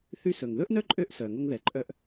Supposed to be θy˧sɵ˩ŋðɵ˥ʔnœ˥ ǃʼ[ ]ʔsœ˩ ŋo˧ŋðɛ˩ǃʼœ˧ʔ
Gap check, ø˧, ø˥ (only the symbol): ø˥